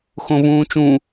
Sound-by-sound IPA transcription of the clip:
x õ v ũː t͡ʃ ũ

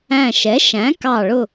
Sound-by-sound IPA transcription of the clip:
æ̃˧˩ ʃ ɛ˩˥ ʃ æ̃˩˥ k ɑ˧˩ ɭ ʊ˧˩

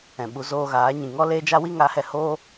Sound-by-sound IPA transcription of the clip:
ɛ̃˨ ɓ u˧ z oː˧ ɣ aː˨˦ ɲ ĩ˨ ŋ ɔ˦ l eː˦ d͡ʒ a˦ w i˦ ŋ a˨˦ h ɛ˧ h oː˦

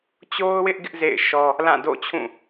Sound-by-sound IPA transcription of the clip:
t͡ɕ o˦ ʊ̯ w ɪ˦ ʔ ɡ ɪ˦ ʔ z ḛ˦˨ ɪ̯ ʃ ɔ˦ | l ã˦˨ d o̰˦˨ t͡ɕʰ ũ˦˨

